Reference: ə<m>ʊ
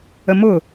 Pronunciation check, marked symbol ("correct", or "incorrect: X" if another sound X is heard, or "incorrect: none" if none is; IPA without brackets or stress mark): correct